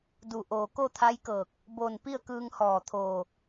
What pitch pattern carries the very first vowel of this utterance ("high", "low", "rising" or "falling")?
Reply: low